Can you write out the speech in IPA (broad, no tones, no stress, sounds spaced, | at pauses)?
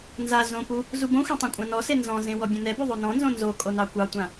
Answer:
n z a z õ p u | z u b õ xʷ ẽ tˤ õ kʷʼ ã n ɔ s e n z ɔ̃ z ẽ w ɔ bʲ õ n ɛ b u ðˤ o n ɔ̃ n z õ n z o kʼ o n ɑ kʷ ɑ tʷ ã